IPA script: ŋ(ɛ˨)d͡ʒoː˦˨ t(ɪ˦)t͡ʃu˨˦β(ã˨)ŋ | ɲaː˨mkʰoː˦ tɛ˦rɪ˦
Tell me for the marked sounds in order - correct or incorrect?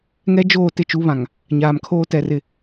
incorrect, correct, correct

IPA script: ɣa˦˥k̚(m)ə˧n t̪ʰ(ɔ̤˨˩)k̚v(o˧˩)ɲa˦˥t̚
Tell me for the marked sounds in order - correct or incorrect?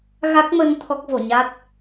correct, incorrect, correct

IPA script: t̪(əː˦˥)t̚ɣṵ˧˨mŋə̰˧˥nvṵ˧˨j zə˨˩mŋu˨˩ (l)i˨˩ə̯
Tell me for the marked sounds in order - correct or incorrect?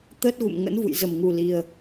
correct, correct

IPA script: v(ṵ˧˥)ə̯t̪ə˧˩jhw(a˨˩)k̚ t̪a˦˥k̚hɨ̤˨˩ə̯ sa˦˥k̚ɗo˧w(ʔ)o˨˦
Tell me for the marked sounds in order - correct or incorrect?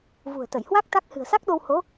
incorrect, incorrect, incorrect

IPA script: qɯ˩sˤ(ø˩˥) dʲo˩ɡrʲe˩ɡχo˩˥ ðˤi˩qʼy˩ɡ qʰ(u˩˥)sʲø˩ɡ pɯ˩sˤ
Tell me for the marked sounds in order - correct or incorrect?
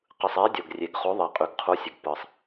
incorrect, correct

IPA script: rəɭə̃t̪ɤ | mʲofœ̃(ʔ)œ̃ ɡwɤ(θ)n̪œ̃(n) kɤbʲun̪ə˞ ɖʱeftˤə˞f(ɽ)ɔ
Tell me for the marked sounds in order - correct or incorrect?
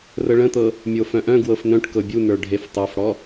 correct, incorrect, incorrect, correct

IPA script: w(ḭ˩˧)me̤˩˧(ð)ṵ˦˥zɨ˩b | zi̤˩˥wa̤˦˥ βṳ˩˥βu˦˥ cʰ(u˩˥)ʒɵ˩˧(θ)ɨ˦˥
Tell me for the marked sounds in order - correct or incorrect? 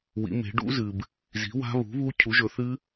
correct, incorrect, correct, correct

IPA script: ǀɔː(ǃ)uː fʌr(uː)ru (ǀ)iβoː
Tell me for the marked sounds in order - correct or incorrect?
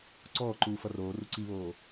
correct, incorrect, correct

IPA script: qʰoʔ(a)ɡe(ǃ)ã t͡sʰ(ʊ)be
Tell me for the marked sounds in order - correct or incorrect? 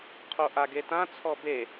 correct, incorrect, incorrect

